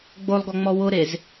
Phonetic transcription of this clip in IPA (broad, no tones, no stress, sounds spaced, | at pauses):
ɡ͡b o lˠ ɡ ɔ ŋ͡m ɔ w ʊ ɾ e z